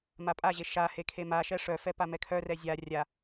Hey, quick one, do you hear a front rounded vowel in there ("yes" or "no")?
yes